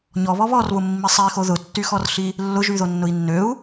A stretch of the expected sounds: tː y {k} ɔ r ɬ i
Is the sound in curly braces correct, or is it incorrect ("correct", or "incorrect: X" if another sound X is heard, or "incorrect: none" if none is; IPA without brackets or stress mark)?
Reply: incorrect: x